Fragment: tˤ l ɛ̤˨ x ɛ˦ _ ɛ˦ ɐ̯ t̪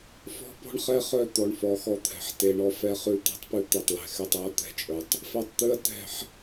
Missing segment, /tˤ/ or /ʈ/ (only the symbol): tˤ